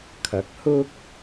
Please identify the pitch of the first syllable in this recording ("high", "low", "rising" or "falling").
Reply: rising